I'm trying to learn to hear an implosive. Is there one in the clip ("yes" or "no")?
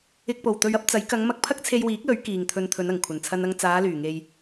no